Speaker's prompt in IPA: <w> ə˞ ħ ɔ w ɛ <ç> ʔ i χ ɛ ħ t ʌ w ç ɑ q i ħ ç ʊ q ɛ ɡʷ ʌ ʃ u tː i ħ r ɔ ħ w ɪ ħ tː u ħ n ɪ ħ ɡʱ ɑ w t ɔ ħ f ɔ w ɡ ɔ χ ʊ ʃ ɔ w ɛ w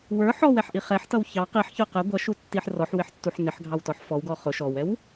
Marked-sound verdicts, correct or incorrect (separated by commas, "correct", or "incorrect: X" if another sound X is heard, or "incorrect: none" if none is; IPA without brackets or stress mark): correct, incorrect: ħ